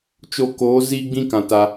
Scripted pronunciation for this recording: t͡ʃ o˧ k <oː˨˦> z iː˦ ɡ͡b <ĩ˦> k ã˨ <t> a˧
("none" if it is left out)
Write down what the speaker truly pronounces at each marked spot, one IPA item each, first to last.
oː˨˦, ĩ˦, t

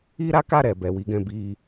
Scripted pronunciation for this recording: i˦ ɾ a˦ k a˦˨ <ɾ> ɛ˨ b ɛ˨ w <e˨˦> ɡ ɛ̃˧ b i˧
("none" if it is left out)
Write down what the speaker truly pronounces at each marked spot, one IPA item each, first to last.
ɾ, i˨˦

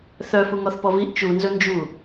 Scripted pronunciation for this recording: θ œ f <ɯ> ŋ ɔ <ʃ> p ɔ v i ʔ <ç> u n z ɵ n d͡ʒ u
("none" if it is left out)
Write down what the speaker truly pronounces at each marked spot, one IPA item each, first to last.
u, θ, t͡ʃ

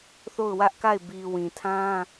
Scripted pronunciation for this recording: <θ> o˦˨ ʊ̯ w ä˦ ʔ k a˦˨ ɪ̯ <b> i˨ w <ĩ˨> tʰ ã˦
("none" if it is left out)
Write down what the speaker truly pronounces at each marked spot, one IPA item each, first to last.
θ, b, ĩ˨

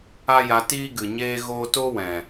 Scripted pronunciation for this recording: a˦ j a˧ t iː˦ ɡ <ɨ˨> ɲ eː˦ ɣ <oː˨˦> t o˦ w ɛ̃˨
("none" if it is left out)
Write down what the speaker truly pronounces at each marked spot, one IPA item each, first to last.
ɨ˨, oː˦

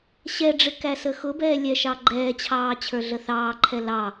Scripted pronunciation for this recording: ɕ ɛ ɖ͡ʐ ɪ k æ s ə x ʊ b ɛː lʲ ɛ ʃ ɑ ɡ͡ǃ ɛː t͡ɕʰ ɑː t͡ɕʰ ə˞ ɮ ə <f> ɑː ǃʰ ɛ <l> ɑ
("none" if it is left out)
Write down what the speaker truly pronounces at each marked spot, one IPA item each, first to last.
θ, l

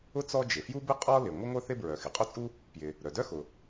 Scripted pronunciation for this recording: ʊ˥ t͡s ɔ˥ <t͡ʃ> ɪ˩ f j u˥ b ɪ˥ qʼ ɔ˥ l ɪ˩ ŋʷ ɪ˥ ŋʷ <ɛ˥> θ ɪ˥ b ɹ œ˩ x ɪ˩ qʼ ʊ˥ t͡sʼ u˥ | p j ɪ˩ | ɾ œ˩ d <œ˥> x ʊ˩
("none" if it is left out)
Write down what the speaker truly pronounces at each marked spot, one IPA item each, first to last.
d͡ʒ, œ˥, œ˥

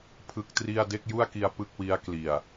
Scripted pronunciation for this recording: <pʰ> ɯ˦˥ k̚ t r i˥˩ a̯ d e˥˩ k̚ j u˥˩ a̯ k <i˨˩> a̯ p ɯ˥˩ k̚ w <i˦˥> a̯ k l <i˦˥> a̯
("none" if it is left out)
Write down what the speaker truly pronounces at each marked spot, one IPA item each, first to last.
pʰ, i˧, i˦˥, i˨˩

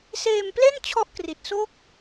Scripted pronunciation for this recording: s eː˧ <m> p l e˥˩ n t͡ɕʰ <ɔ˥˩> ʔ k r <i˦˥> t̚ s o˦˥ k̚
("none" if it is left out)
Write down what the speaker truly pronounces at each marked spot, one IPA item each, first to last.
m, ɔ˦˥, i˨˩

